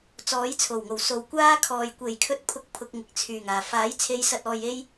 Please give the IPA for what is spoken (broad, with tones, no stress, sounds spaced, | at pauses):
t͡s ɔː˨˥ j t͡sʰ o˨˩ w ŋ o˨˩ w s o˨˧ w kʷ aː˥ kʰ ɔː˨ j kʷ e˨˩ j kʰ ɵ˧ t̚ pʰ ʊ˧ k̚ pʰ ʊ˨ k̚ ŋ ɪ˨ k̚ t͡sʰ yː˨˩ ŋ aː˨˩ f aː˨˥ j t͡sʰ e˨˧ j s ɐ˨ t̚ ɔː˨ j e˧ j